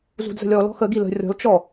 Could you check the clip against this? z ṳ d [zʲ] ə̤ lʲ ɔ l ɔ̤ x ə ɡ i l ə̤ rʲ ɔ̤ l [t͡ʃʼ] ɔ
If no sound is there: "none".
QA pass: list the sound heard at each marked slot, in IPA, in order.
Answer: z, t͡ʃ

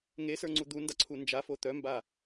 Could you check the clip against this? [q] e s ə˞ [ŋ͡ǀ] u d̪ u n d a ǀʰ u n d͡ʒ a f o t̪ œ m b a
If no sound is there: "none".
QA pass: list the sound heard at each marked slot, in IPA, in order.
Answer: ŋ, ŋ͡ǀ

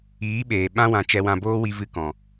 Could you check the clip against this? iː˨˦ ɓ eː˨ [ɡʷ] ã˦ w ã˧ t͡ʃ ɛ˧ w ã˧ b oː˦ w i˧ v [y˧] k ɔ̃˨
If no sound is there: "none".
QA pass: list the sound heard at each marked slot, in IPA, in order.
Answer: ɓ, ɨ˧

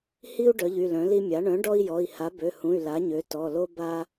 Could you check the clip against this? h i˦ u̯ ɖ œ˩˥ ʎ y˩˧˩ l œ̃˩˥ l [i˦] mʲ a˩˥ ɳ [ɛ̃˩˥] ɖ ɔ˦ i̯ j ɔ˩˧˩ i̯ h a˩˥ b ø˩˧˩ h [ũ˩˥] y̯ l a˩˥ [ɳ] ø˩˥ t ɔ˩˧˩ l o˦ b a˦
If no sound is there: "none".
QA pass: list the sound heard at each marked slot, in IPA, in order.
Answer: i˦, œ̃˩˥, ũ˩˧˩, ɲ

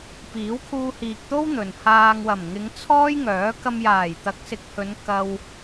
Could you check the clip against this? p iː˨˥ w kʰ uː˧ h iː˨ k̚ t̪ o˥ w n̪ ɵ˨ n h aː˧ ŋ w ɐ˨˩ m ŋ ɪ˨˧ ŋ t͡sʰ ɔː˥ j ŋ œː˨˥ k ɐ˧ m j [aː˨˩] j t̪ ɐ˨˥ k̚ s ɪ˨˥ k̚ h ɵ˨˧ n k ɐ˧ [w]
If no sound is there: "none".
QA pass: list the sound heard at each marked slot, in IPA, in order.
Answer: aː˨˩, w

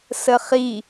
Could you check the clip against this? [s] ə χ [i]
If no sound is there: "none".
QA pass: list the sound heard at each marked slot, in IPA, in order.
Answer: s, i

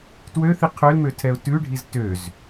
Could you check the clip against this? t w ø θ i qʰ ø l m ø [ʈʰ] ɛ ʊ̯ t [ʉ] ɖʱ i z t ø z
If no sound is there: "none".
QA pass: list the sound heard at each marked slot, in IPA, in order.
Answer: tʰ, ʉ

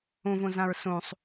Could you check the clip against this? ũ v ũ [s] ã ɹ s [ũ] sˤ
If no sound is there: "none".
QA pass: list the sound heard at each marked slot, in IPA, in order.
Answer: z, ũ

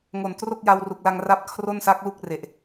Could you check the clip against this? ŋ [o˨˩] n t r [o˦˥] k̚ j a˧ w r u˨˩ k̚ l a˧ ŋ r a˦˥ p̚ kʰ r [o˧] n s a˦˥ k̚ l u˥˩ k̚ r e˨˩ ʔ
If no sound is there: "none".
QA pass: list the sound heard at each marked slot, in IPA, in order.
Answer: o˨˩, o˥˩, o˥˩

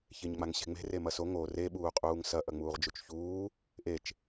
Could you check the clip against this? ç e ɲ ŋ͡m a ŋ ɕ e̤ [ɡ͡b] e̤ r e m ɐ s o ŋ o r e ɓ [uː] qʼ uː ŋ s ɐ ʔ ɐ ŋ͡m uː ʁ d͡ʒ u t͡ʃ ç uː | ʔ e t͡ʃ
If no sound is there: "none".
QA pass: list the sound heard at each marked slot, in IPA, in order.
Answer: ŋ͡m, uː

